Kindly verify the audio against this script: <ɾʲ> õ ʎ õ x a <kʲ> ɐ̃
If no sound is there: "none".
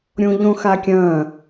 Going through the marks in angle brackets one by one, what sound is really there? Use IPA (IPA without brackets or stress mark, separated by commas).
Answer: ɾʲ, kʲ